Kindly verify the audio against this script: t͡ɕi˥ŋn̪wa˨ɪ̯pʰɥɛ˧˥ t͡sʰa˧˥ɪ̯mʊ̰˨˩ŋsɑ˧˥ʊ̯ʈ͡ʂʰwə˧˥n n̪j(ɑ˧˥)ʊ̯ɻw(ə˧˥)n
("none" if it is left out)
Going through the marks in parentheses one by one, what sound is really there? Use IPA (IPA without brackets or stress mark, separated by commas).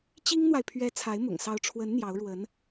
ɑ˧˥, ə˧˥